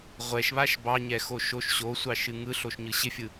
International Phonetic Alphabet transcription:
ʁʷ ɛ ʃ β a ʃ b ɑ ɲ ɛ x o ʃ o ʃ ɕ o sʷ ɑ ʃ ɨ ŋ ɯ ɬ o ʃ ɲ ɯ ɕ ɪ fʲ ɯ

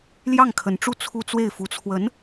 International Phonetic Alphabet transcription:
l j ɑ˥˩ ŋ kʰ ə˧˥ n ʈ͡ʂ u˥˧ t͡sʰ u˥˧ t͡s w e˥˩ ɪ̯ f u˧˥ t͡sʰ w ə˧˥ n

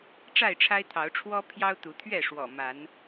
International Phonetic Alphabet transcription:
ʈ͡ʂ a˥˨ ɪ̯ ʈ͡ʂʰ a˦ ɪ̯ t̪ʰ ɑ˨˦ ʊ̯ ʈ͡ʂʰ w ɔ˦ pʰ j ɑ˦ ʊ̯ t̪ u˨˦ t̪ʰ ɥ ɛ˥˨ ʂ w ɔ̰˨˩ m a˨˦ n

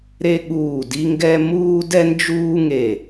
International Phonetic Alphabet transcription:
ɾ e˥ ɠ uː˦˨ d i˥ ŋ ɡ ɛ˥ m uː˥ d ɛ˥ n d͡ʒ uː˥ ŋ e˦˨

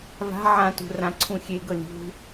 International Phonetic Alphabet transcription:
v a̤ ʕ ã t ṳ r ã ǀʰ ũ xʲ e ɡ ɤ lʲ ṳ

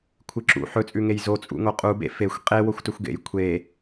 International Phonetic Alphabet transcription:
kʷʰ ɨ ǁ ṵ ħ ɵ t͡sʼ ʉ ŋ e j z o t͡sʼ ṵ ŋ o qʼ u b ḛ f e xʷ qʼ e w o xʷ t ɵ xʷ ɡ ḛ j kʷʰ e

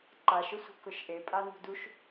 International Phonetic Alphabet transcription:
ǃ a ʃ ʊ sʷ i̤ k ʊ ʃ ʔ e pʼ a n ṳ d u ʃ

